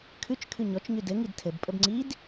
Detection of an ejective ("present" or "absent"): present